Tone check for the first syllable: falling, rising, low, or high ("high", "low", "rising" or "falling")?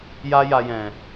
high